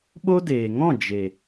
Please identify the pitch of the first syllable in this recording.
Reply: high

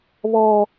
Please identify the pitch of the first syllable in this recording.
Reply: high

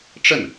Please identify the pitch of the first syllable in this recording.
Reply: falling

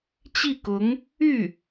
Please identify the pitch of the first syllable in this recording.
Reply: falling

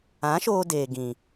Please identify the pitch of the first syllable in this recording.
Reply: rising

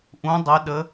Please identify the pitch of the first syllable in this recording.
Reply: rising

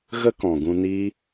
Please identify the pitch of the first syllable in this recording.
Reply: high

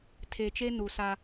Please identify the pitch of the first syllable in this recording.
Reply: low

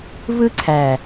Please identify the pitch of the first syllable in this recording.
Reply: high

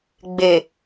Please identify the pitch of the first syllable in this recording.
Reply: low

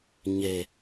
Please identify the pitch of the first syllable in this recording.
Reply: low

